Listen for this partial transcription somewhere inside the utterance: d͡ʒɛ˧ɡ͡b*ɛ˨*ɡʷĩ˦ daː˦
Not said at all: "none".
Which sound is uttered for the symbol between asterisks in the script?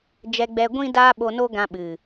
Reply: ɛ˧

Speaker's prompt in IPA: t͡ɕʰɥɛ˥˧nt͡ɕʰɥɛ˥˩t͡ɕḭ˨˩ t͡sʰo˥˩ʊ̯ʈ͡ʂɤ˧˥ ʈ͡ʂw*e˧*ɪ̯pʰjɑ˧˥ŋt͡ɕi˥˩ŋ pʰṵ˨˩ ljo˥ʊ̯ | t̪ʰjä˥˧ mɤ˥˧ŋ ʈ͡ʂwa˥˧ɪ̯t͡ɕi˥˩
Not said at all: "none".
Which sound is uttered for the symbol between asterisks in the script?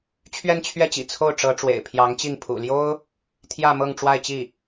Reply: ḛ˨˩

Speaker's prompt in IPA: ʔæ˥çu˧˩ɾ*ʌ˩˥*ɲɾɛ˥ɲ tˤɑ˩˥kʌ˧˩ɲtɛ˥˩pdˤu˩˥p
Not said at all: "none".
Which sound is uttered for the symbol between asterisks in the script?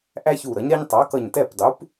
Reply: ʌ˩˥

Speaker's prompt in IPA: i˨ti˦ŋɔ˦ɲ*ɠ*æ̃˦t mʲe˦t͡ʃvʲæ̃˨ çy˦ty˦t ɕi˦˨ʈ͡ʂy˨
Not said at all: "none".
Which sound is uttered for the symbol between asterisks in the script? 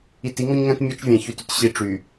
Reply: ŋ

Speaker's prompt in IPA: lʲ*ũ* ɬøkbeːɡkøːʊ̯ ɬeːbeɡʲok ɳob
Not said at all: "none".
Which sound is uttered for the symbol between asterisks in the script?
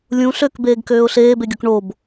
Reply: ũ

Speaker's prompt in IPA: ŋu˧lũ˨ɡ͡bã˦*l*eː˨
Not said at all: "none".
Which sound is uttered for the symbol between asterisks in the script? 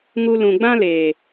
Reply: l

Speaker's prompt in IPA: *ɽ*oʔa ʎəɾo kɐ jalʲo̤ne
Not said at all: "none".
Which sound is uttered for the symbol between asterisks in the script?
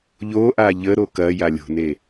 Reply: ʎ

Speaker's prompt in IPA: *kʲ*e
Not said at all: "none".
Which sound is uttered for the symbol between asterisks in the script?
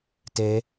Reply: t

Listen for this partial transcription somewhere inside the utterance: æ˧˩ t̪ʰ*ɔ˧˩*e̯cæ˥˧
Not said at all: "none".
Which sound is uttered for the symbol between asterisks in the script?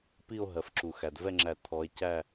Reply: ɔ˨˦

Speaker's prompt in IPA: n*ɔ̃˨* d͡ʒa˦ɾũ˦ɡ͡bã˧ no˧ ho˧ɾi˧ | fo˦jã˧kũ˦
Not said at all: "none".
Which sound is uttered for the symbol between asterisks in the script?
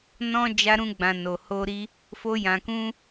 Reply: ɔ̃˦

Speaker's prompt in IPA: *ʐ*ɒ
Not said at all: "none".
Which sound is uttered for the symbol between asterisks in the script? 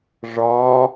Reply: ʐ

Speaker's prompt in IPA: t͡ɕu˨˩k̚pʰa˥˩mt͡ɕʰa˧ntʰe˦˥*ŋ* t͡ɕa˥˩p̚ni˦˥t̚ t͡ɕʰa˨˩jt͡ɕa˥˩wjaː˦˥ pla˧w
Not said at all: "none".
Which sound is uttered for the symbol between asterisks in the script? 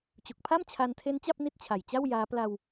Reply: n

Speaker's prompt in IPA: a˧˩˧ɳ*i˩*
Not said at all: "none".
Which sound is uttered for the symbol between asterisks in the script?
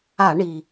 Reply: i˩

